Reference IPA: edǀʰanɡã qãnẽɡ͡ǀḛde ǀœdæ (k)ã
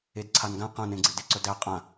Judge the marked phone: incorrect: qʼ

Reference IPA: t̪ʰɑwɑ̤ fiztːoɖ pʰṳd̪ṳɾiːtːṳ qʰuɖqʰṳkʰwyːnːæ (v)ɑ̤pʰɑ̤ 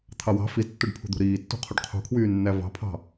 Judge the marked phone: correct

